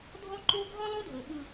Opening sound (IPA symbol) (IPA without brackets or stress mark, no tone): dʱ